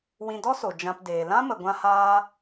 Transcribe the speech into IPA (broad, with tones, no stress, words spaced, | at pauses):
wĩ˧dɔ˦so˨ d͡ʒã˧pdeː˨ lã˦mə˨ɡʷã˧haː˧